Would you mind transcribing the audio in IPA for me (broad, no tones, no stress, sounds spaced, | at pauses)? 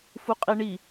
f u qʼ i ɳ i